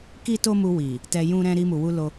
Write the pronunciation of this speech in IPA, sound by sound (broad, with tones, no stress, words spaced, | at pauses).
ki˦to˦mu˧wi˨ | tɛ˧jũ˦ɾɛ̃˦ ɾi˧mu˨wu˧ lo˧